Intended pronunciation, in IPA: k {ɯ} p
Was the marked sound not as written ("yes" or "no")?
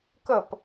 yes